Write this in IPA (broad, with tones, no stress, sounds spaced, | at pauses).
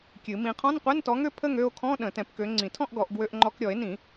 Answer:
kʲ ɨ˨˩˦ m ĩ˨˥ qʰ ɔ̃˧˥˧ n qʷ ɛ˧˥˧ n t ɔ˨˥ ŋ ø˥˧ pʰ ə˥˧ ŋ ø˥˧ o̯ kʰ ɔ̃˧˥˧ ɗ ə̃˨˩˦ t ɛ̃˨˩˦ p k ø˨˥ ŋ͡ǀ ĩ˨˩˦ tʰ ɔ̃˥˧ ʔ ɡ ɔ˨˩˦ ʔ ɡ w ø˧ ʔ ŋ͡ǃ ɔ˧ k ɾʲ ɔ˨˩˦ e̯ n ĩ˨˩˦